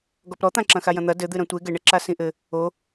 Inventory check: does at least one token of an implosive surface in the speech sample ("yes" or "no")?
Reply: no